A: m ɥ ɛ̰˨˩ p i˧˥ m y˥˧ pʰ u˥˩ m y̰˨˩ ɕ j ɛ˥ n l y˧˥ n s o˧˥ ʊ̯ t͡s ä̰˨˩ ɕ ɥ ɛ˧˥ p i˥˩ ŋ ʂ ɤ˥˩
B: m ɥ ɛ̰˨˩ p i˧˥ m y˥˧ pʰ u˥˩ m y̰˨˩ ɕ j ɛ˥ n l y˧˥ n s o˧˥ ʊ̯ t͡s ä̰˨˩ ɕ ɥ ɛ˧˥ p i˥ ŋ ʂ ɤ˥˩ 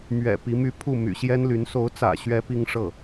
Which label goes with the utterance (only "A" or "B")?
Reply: B